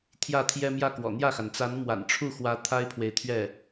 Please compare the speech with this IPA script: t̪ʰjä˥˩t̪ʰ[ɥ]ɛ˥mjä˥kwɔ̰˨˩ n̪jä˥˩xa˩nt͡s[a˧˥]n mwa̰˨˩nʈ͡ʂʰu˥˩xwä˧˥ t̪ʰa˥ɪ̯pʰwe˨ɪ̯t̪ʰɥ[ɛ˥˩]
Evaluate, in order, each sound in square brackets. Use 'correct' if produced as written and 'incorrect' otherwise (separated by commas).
incorrect, correct, correct